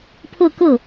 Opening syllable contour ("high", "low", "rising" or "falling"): falling